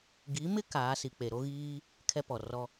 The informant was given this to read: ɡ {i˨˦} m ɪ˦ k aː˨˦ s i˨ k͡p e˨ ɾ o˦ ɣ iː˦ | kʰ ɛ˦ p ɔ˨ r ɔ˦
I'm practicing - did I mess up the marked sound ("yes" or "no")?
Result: no